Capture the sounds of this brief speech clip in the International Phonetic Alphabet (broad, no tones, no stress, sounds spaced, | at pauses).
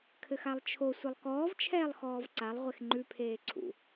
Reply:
kʰ ɘ x a lˠ t͡ʃʰ o sʷ ɘ lˠ k ɔː v t͡ʃʰ ɛː lˠ x ɔː v ǀ a lˠ ʁʷ e x ŋ͡ǃ ʉ pʰ eː ǀʰ ṵ